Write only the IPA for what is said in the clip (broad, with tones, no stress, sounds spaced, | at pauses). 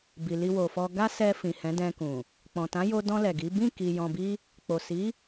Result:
b i˧ l i˦ w o˧ f ɔ˦ ɡ a˦ s ɛ˧ f ĩ˨ h ɛ̃˨˦ d ɛ̃˧ k ũ˨ | k͡p ɔ̃˨ t ã˨˦ j o˧ d ɔ̃˧ l ɛ˨ ɡ i˨˦ b ĩ˦˨ k i˨ j ɔ̃˨ b i˧ | k͡p o˨ s i˨˦